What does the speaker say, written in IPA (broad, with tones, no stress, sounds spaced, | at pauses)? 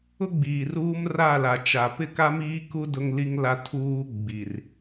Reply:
ʊ˦ ɡ͡b iː˨ r uː˦ m r a˦˨ l a˨ t͡ʃ a˨ p ɪ˦˨ k a˦ m iː˦ k u˦ d ʊ˦ ŋ l i˦ ŋ l a˦ tʰ uː˦ ɡ͡b i˨ r